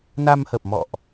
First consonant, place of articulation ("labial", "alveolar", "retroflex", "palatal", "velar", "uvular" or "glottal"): alveolar